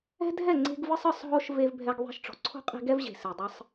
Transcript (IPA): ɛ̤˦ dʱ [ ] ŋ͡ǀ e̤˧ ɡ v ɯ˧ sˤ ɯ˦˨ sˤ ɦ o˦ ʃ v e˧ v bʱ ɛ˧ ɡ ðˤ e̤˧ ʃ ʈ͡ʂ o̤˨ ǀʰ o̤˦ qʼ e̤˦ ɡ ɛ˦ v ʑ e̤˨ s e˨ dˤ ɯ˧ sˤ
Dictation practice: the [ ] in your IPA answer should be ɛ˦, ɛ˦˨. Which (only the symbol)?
ɛ˦˨